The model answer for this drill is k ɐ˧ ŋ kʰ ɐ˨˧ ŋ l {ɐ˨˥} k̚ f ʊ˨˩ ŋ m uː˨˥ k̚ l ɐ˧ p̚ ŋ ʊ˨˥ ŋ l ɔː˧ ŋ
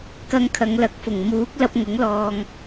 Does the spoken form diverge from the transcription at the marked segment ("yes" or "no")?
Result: no